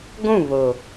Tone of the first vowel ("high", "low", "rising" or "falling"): falling